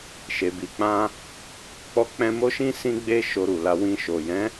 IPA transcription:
ʃ e˧ b i˧ k͡p ã˦ | k͡p ɔ˦ k͡p ɛ̃˦ m o˦ ʃ ĩ˦ s ĩ˦ ɡ͡b e˦ ʃ o˧ ɾ u˨ l a˧ w ĩ˧ ʃ o˨ j ɛ̃˨˦

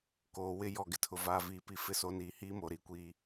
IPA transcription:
k oː˨ w ɪ˦ j ɔ˨ ɡ ɪ˨ tʰ ʊ˨ v aː˨ v iː˨ p i˨ f ɪ˦ s o˨˦ n iː˨ h iː˦ m oː˨ ɾ iː˦ kʷ iː˦

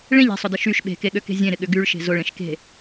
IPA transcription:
ɭ ẽ ʎ e̤ sˤ ʊ d ɪ ʃ y ʃ ɓ e̤ k e ɠ ø k e̤ zʲ ẽ ɾ ɪ ɠ ʏ ɡ y ɭ ʃ e̤ z ʊ ɭ ẽ ʃ k e̤

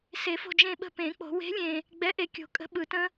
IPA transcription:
s e˨˩˦ f o̤˦˨ d͡ʒ ẽ˦˨ ɓ ə̤˦˨ p ẽ˨˩˦ k͡p o̤˨˩˦ w e̤˨˥ lʲ ẽ˨ | ɡ͡b ɛ˨˥ ʔ e˨ kʲ o̤˨˩˦ kʼ ə̤˨˥ ɓ ɯ˨˩˦ t ə̃˦˥

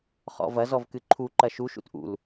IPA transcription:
χ ɔ̰ v ɐ z ɔ v k ɨ ǃʰ u ǃ ɐ ʃ u ʃ ṵ t ʔ ṵ l

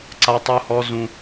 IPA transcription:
ǀ a˦ tˤ u˦ h ɔ˦ z ũ˦

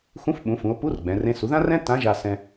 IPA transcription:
x ũ˧˥ f ɓ ũ˩˧ f ũ˩˧ o̯ p u˧˥ r ɡ͡b ɛ̃˩˧ r ẽ˧˥ s u˩˧ ð ã˥ r ɛ̃˥ t ã˧˥ ʒ a˧ s ɛ̃˧

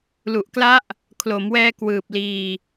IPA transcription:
l u˨˩ ʔ k l a˦˥ ʔ | kʰ l o˩˦ m w ɛː˧ k w ɯː˨˩ p̚ l iː˧

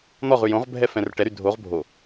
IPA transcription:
n̪ ɔ ʁ ʉ j õ ʁ bʱ ɛ f ɛ̃ r ʈ ɛ ɾ y dʱ o ʁ bʱ o

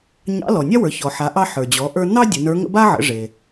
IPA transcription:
ɲ ɑ̰˧˥ l ɔ˩ nʲ a˥ w ə˞˩˧ ç ɔ˩ ħ a˩˧ ʔ ɑ˧ ħ ə˞˩ d͡ʑ ɔ˩˧ ʔ ə˞˧ n ɑ˥ dʲ ə˩˧ n ə˞˧˥ ŋ ə̰˥ b a˥ ʕ ə̰˩˧ ʐ e˩

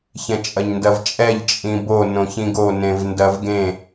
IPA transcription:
ç ɛ̃ t͡ʃʼ ɐ ɲ n d ɐ v t͡ʃʼ ɛ ʎ t͡ʃʼ ĩ b o n õ ç ĩ ɡ o n ẽ v n d ɐ v ɡ ẽ

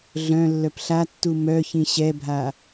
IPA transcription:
ɮ œ̃ lː œ p ɬ a tː u m œ ç ĩ ɕ ɛ bʱ a

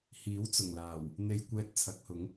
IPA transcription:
h iː˨˥ w t͡s ʊ˨˩ ŋ l aː˨˩ w | n̪ e˧ j kʷ ɛː˧ t̚ t͡sʰ ɐ˨˥ k̚ h ʊ˨˥ ŋ

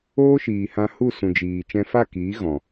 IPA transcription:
oː˦ ʃ iː˨ h ã˧ h u˦˨ s ũ˨ d͡ʒ iː˨ t͡ʃ ɛ̃˧ f a˦˨ k iː˨˦ ɣ ɔ̃˨

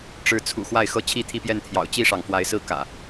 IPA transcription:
ʈ͡ʂ ɻ̩˨˦ t͡sʰ ṵ˨˩ x w a˥˨ ɪ̯ x ɤ˦ t͡ɕʰ i˦ t̪ʰ i˦ p j ɛ˥˨ n t̪ʰ j ɑ̰˨˩ ʊ̯ t͡ɕ i˥˨ ʂ ɑ˩ ŋ f w a˨˦ ɪ̯ s ɹ̩˦ k ä̰˨˩

